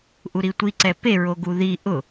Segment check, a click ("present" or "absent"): present